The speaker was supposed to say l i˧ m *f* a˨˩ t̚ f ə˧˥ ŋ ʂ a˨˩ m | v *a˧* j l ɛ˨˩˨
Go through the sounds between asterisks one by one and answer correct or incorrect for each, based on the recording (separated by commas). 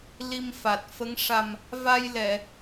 correct, correct